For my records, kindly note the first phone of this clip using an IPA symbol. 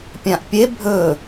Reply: pʲ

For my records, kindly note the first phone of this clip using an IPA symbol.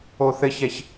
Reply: o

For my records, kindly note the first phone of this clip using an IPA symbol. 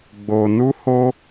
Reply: ɡ͡b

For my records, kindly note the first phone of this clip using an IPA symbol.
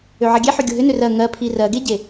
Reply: ø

